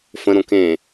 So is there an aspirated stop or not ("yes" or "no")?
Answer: no